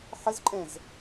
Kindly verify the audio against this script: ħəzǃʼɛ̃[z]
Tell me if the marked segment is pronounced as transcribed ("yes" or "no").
yes